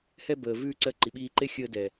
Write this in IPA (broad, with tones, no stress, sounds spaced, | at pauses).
h ɛ˧ b əː˨ v ʉː˧ ǀ ɜ˧ ǃ i˨ ɓ iː˧ ǃ e˦ xʲ əː˧ d ɛ˨